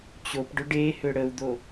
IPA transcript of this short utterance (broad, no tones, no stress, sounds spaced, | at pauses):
t͡ɕ o p ɖ ʊ ɖ e h ʏ ɽ ə u̯ d̪ o